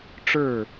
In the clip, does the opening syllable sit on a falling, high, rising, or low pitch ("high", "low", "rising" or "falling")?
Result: falling